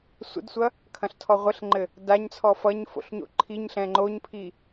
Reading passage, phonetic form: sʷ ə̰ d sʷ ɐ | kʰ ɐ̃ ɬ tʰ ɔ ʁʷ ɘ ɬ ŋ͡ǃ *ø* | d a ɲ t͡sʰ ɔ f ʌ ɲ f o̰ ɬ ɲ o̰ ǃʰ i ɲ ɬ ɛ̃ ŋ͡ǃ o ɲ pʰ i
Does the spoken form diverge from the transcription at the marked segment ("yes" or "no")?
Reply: yes